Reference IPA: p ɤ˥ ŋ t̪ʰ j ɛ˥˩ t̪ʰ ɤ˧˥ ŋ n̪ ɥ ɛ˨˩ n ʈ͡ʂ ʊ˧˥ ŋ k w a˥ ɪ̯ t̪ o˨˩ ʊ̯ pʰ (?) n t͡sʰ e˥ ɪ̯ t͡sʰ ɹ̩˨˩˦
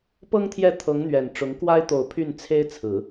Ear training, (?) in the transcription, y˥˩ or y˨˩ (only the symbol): y˥˩